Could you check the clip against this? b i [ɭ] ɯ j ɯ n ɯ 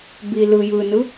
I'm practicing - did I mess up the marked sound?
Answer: yes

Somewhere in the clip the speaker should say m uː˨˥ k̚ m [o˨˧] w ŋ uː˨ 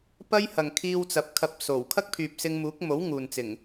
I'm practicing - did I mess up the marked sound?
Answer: yes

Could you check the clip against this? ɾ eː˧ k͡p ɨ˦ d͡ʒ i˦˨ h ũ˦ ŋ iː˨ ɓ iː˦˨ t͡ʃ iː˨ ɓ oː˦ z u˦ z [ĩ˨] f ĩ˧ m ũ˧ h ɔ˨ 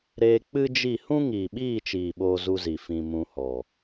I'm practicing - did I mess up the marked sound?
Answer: yes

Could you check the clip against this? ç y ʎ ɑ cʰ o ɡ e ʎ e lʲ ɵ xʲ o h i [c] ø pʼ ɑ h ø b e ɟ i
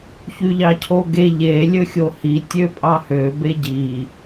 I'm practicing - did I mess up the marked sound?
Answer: yes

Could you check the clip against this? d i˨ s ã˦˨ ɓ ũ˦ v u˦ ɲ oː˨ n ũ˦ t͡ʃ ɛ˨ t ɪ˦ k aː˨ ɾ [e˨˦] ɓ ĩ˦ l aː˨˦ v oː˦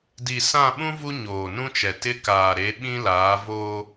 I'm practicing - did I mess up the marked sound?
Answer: no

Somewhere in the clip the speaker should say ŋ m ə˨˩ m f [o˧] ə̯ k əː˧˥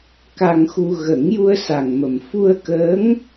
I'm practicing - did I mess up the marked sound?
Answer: yes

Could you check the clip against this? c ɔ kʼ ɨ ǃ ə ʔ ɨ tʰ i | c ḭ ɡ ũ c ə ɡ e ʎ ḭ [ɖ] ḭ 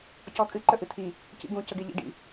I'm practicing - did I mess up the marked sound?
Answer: no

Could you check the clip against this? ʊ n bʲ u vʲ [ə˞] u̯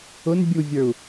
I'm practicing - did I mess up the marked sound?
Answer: no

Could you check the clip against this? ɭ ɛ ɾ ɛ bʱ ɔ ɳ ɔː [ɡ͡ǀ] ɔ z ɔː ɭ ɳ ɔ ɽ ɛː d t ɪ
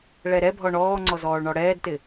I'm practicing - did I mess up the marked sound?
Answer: yes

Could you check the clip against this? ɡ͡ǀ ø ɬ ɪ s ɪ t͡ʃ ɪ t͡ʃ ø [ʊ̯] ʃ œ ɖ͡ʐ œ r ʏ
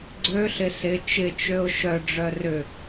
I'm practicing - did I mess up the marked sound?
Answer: no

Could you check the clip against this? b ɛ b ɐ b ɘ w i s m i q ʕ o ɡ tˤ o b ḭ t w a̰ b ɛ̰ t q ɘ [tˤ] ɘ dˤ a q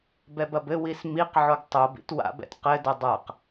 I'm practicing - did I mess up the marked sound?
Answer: yes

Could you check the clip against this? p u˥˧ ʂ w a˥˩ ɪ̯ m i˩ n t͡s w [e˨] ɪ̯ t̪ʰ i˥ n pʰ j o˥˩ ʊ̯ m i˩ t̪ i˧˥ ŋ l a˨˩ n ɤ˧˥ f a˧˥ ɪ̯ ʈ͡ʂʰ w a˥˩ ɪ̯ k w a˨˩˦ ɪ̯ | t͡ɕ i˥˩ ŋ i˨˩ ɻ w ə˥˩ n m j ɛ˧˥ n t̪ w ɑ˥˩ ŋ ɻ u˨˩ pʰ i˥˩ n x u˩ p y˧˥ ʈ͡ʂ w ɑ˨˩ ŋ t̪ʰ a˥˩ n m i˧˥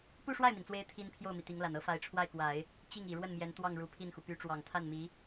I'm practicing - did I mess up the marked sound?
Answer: yes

